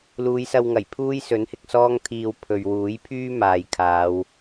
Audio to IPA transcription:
l uː˨˧ j s ɐ˧ w ŋ ɐ˨˩ j pʰ uː˥ j s ɵ˨˥ n h ɪ˧ k̚ s ɔː˥ ŋ t̪ʰ iː˧ w pʰ ɵ˨ ɥ w uː˨˥ j pʰ yː˥ m aː˨ j kʰ aː˨˧ w

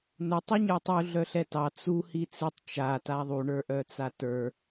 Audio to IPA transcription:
n ʊ tˤ u ɲ ə˞ tˤ u ɮ œ ɬ ɛ t ɑ t͡s u h i t͡s i tˤ t͡ʃ a t a ðˤ u ɳ ə˞ ʔ œ t͡s a t ə˞

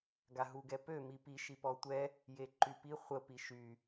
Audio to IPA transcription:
ɡ a ɦ u ɡ ɛ p ø m i p i ʃ i p ɔ tʷ ɛ | j e ǃ y p i χʷ ə p i ʃ y

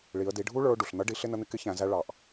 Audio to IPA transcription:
ɭ i˩˧ ə̯ d i˩˧ ɖʱ u˥ ɭ ə˞˧ ʊ̯ ɖ u˩ ɬ n̪ ʌ˧˥ ɖ i˩˧ ɬ ɪ˥ n ə˧˥ n̪ ɪ˧ k ɪ˧˥ ç æ̃˩˧ z æ˧ ɭ ɑ˩ ʔ

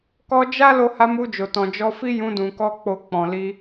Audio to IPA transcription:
k ɔ˧ d͡ʒ a˦ l o˧ h a˧ m u˧ d͡ʒ o˨ t ɔ̃˨ d͡ʒ ɔ˧ f i˦ j ũ˧ d ũ˨ k ɔ˧ k͡p o˧ k͡p ɔ̃˨ l i˧

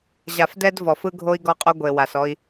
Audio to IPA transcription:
ʑ a˨ f d ɛ˦ d v ɔ˨ f ɯ˦ ɡʱ o˦ i̯ ɡ ɔ˦ qʼ o˦ ɡʷ e˨ w a˨ s ɔ˦ i̯

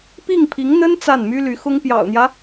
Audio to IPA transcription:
p i˥˩ ŋ pʰ i˧˥ ŋ n̪ ə˥ n t͡s a˥˩ n m y˥ l y˧˥ x ʊ˥ ŋ p j ɑ̰˨˩ ʊ̯ n̪ j ä˦

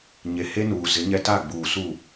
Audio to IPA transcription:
ɲ e˨ h e˦ n uː˨ z ɪ˨˦ ɲ ɛ˦ t a˦˨ ɡ͡b uː˨ s u˦˨

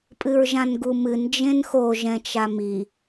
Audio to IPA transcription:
pʼ ɨ ɹ ʒ ã n ɡ u m ɨ n d͡ʒ ẽ n x o ʒ ɛ̃ t͡ʃ a m i

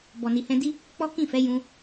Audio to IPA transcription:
b ɔ˨ n i˨ h ɛ̃˧ d i˦ | k͡p ɔ˦ k ĩ˦˨ f ɛ˨˦ j ũ˧

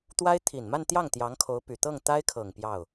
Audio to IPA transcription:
t̪ w a˥ ɪ̯ t̪ʰ i˨˩ n m a˥˧ n t̪ j ɑ˥˩ ŋ t̪ j ɑ˧˥ ŋ kʰ o˧˥ ʊ̯ p y˨˩ t̪ ɤ˥˩ ŋ t̪ a˥ ɪ̯ kʰ ɤ˨˩ ŋ p j ɑ˥˩ ʊ̯

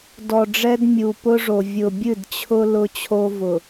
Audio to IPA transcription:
d ɔ˨ ɖ͡ʐ ɛ˦ d mʲ u˨ p ʊ˦ ʐ o˨ vʲ ʊ˨ bʲ ɨ˦˨ d t͡ɕʰ ʊ˦ l ʊ˦ t͡ɕʰ o˦ v ʊ˨

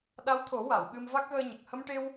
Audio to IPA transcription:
ɗ a˧˥ w t̪ʰ o˨˩˦ w a˨˩˨ w ɓ ɨ˧ m v a˦˥ k̚ ɣ əː˧ ɲ ə˨˩ k̚ h ə˧ m ʈ e˧ w

